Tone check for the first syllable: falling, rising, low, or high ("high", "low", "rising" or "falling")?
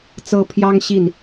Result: high